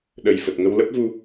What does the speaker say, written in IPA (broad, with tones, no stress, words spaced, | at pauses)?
ɗə˨˩jfə˨˩t̚ŋə˧w lə˦˥p̚vu˧